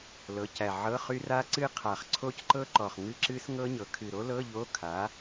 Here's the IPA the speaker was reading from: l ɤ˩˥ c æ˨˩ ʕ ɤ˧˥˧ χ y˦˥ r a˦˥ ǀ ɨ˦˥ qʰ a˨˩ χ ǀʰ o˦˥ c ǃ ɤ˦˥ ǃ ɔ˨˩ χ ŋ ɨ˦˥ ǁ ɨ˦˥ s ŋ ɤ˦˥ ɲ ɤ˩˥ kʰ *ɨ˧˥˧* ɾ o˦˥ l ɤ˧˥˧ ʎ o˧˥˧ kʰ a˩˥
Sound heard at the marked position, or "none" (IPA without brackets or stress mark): ɨ˨˩